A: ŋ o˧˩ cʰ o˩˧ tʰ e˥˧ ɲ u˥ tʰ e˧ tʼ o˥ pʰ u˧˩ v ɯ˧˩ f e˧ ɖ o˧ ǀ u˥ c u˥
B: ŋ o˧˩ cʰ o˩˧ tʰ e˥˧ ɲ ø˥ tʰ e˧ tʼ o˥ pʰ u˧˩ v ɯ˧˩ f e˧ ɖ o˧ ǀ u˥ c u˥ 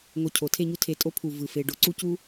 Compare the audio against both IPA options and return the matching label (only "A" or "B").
A